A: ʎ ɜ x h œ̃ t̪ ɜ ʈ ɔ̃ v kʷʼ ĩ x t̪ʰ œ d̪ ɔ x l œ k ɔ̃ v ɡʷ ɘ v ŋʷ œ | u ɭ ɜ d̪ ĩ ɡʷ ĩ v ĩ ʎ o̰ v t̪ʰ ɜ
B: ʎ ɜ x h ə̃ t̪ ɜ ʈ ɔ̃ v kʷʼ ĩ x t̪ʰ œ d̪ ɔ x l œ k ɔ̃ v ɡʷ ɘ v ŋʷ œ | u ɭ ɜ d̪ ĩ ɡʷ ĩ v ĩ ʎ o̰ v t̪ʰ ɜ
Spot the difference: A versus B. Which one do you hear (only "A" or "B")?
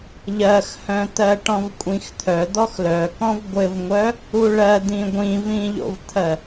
A